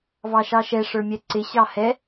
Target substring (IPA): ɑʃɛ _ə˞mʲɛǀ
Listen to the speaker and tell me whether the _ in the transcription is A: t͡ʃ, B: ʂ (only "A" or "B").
B